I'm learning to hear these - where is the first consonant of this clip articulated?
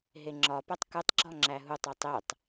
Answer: throat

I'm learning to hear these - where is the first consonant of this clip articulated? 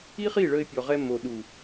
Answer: uvula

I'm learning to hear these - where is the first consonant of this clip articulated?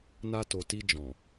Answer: tongue tip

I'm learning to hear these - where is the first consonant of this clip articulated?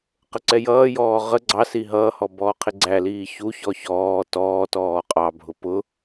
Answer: uvula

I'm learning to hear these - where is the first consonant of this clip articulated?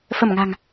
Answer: lips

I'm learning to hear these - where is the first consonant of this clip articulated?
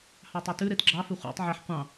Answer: throat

